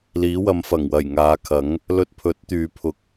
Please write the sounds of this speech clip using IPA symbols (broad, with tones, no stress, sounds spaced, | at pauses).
l iː˨˥ w ɐ˨˧ m f ɐ˨˩ ŋ w ɐ˨˩ j ŋ aː˨˧ kʰ ɐ˨˥ ŋ | l ɵ˧ t̚ pʰ ɵ˨˥ t̚ t̪ yː˨˧ pʰ ʊ˧ k̚